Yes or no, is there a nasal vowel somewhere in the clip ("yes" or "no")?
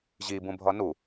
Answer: yes